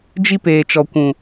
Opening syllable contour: high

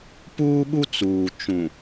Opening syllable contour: high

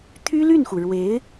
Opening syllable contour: high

